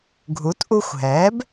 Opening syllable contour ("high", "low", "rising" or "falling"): rising